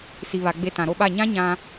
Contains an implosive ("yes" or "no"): yes